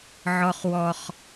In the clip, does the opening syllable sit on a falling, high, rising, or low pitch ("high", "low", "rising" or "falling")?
high